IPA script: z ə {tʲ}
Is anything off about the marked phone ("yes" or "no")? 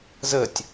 no